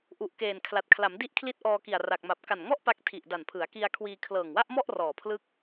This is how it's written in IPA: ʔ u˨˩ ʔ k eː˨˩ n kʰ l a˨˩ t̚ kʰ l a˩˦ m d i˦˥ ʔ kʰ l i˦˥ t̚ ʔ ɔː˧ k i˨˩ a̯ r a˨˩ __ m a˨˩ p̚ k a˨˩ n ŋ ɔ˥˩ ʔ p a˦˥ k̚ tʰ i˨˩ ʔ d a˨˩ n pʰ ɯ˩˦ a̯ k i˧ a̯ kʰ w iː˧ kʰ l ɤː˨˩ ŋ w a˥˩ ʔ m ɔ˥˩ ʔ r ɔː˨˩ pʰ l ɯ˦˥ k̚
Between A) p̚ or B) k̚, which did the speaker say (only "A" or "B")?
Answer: B